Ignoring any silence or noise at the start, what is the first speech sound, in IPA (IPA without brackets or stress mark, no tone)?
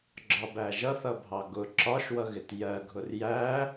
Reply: ɡ͡ǁ